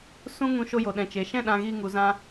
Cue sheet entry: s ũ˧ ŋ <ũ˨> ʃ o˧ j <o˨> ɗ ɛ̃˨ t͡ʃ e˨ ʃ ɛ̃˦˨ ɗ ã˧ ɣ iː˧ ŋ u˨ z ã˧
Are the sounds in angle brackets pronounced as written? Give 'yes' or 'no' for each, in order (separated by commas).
no, yes